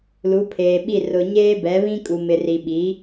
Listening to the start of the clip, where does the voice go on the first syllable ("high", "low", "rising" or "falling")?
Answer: rising